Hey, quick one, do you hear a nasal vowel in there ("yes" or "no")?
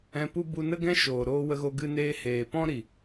yes